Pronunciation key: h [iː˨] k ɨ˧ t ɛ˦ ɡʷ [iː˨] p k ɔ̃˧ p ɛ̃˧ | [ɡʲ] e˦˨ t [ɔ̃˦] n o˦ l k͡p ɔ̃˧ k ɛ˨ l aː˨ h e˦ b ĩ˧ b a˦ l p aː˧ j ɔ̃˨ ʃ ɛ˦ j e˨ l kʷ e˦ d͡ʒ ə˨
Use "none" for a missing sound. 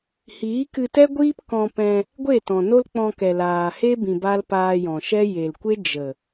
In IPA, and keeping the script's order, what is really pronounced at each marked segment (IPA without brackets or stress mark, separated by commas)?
iː˨˦, iː˦, ɡʷ, ɔ̃˨